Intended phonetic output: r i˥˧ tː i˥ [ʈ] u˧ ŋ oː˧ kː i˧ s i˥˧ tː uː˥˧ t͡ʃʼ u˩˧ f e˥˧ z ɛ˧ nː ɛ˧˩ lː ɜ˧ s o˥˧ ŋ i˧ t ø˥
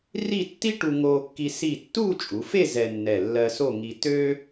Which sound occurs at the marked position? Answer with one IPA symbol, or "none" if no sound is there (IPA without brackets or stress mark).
ʈ